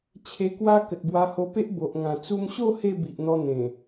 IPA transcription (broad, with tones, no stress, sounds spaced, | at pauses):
t͡ɕʰ e˧ k w a˦ k ə˨ t̚ b w a˧ h o˧ p e˦ ʔ b o˨ ʔ ŋ ã˨˩ t͡s u˧ m ɕ o˥˧ h e˥˧ b i˨ ʔ n̪ ɔ˧ n̪ ẽ˨˩